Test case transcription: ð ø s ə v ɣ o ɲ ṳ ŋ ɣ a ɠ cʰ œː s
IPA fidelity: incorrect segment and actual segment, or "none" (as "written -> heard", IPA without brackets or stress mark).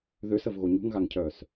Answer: ɠ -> ŋ